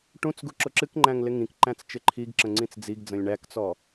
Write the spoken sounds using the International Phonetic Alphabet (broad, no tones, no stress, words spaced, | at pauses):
ʈũt͡sɡu ǁʊǁɨkŋ͡ǃæ̃ŋ lɪŋĩkǃæ̃t͡s t͡ʃɪǃʰiɡǁə̃ ŋ͡ǀĩt͡sd͡ziɡd͡zə̃lʲ ɳækt͡sɔ